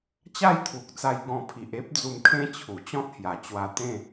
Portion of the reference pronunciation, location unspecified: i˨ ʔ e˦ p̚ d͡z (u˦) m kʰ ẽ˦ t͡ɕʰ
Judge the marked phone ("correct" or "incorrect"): incorrect